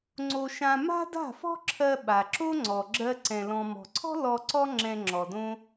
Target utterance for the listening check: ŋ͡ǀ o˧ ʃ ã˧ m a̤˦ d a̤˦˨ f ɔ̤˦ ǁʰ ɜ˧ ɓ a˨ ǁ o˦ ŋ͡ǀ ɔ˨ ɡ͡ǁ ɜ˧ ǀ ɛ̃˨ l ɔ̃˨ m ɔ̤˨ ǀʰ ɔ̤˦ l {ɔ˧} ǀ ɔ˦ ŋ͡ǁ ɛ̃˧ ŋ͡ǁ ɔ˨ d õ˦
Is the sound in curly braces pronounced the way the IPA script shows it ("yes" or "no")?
yes